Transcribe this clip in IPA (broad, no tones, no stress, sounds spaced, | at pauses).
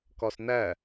k ɒ s n æ